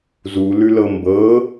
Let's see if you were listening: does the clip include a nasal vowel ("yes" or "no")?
no